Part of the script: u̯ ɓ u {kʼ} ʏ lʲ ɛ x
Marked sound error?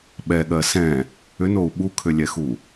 yes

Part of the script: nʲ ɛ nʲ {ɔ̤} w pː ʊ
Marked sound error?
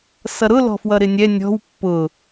no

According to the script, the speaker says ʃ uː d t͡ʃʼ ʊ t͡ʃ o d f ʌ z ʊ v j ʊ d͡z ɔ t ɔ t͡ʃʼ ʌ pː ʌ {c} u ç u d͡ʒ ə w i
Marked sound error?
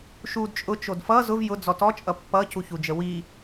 no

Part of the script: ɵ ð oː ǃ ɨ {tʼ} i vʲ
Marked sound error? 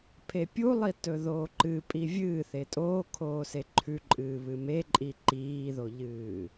yes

